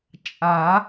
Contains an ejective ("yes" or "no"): yes